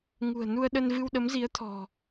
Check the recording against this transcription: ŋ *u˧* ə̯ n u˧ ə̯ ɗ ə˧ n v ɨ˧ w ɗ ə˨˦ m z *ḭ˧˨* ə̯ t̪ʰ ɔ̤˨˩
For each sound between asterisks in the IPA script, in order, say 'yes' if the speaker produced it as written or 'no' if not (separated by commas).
no, no